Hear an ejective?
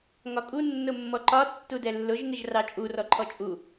yes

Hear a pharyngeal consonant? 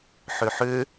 yes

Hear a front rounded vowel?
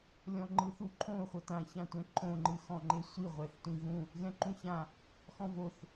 no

